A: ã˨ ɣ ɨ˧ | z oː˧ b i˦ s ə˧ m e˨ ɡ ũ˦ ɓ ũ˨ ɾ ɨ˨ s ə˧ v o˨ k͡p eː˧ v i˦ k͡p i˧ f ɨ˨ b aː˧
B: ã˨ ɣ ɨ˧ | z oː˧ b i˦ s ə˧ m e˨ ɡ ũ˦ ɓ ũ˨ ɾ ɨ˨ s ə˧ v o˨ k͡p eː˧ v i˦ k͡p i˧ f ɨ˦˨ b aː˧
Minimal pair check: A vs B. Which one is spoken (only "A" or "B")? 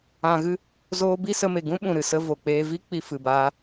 A